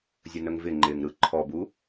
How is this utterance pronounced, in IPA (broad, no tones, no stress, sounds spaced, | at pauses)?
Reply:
zʲ ə n ə ŋ v ɪ ŋ͡ǃ ɪː ŋ ɾ ɯ ǃʰ ɔ b u